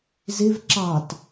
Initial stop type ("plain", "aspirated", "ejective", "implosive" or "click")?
click